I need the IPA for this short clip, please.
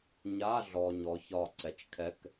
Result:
ɲa˧˥˧ɮɔ˨ ɲɔ˩˥çɒ˦˨ǀɛ˩˥t͡ʃ kʰɛ˧˥˧k

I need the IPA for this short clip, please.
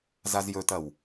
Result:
zazjɵtɐw

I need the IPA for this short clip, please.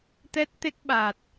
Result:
t̪ɛ˦˥t̚t̪e˦˥k̚ ɓa˨˩t̚

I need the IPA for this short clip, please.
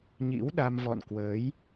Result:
ɲḭ˧˥wɗa˧m vɔ̰˧˨nkwəː˨˦j

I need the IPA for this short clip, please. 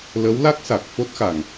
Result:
lə˧˥wla˦˥k̚ sa˨˩k̚fo˦˥t̚xa˨˩ŋ

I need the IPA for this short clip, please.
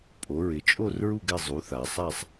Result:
pʼo˩˧ɹɪ˩˧ t͡ʃʼo˥˧rɹu˥˧ɡɛ˥˧ zˤu˩˧θ a˩˧sˤa˥˧sˤ

